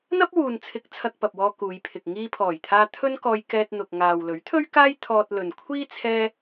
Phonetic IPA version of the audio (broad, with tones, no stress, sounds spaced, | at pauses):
n̪ ɐ˥ p̚ w uː˨ n t͡sʰ ɪ˨˥ k̚ t͡sʰ ɐ˧ k̚ p ɐ˨ p̚ w ɔː˧ k uː˨˧ j pʰ ɪ˨ k̚ ŋ iː˧ pʰ ɔː˨˩ j t̪ʰ aː˧ t̪ʰ ɵ˥ n k ɔː˧ j k ɛː˧ t̚ n̪ ʊ˨ k̚ ŋ aː˨ w l ɵ˨˥ ɥ t̪ʰ ɵ˥ ɥ k aː˥ j t̪ʰ ɔː˧ t̚ l ɵ˨ n kʷʰ iː˥ t͡sʰ ɛː˥